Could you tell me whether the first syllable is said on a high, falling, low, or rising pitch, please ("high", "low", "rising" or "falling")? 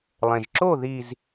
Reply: low